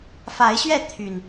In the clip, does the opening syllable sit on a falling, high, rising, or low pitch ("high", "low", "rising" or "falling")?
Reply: rising